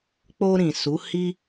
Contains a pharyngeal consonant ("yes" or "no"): no